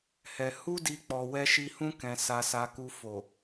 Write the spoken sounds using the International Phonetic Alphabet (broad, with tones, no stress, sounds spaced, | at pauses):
h ɛ˧ h u˦ d i˧ k͡p ɔ˨ w ɛ˧ ʃ i˧ h ũ˦ k ɛ̃˧ s a˧ s a˧ k u˧ f o˨